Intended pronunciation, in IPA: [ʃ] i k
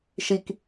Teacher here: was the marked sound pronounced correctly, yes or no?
yes